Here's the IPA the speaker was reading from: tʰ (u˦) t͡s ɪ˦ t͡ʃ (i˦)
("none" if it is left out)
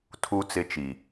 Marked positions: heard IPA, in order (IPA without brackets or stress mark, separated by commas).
u˦, i˨